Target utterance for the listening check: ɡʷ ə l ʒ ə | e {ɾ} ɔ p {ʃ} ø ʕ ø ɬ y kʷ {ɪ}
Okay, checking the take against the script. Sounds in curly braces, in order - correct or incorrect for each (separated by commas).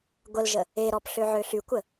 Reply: correct, incorrect, incorrect